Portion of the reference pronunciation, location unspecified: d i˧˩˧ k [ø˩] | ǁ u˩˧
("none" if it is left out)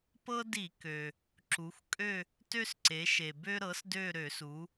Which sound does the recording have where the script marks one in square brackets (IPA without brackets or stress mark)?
ø˩